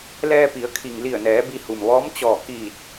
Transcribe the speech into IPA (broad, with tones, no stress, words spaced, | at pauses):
lɛː˧pi˩˧ə̯kʰi˩ŋ li˧˩ə̯nɛː˩˧ bi˧hu˩mʋɔː˧˥m t͡ɕɔː˧˩kiː˧˩t̚